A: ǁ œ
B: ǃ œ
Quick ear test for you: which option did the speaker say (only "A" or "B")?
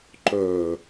B